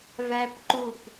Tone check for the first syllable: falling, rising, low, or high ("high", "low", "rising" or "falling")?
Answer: high